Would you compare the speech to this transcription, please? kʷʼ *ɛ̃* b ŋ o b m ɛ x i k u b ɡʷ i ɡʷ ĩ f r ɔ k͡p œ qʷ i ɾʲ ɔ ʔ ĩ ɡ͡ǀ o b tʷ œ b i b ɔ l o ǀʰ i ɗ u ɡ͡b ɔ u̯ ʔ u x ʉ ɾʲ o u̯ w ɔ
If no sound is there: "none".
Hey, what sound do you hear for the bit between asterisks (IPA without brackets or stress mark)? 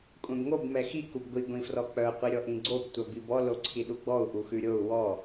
ɛ̃